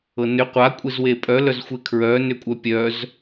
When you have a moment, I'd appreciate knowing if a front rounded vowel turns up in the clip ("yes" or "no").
yes